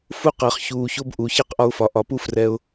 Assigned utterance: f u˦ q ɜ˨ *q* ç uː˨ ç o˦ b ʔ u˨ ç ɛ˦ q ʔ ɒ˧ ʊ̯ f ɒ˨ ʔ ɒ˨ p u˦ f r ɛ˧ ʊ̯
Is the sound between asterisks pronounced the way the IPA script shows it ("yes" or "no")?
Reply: no